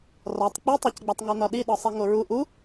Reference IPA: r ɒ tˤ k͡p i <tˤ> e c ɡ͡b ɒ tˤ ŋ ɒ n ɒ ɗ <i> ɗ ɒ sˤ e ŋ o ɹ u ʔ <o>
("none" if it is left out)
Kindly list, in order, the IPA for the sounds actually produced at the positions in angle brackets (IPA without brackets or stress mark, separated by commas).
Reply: tˤ, i, u